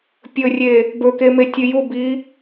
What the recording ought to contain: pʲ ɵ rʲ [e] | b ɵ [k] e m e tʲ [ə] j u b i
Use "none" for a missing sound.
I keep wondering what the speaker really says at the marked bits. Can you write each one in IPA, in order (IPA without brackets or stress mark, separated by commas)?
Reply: e, k, ɨ